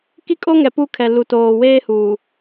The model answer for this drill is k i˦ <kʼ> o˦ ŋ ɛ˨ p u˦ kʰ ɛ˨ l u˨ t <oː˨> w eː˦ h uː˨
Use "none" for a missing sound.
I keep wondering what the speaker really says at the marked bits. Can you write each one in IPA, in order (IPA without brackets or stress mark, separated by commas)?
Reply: kʼ, oː˨